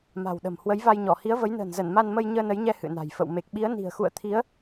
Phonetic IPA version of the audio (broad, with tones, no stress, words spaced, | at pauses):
ma̤˨˩wɗə̤˨˩m hwə˨˦jva˧jɲɔ˧˩ hi˨˦ə̯və˨˦jnə̤ː˨˩nzə˧˩n ma˧nmə˧j ɲəː˧nə˨˦jɲɛ˧ hɨ̰˧˨na̤˨˩j fə̰˧˨w me˨˩k̚ɓi˨˦ə̯ni̤˨˩ə̯ xṵ˧˨ə̯t̪ʰi˨˦ə̯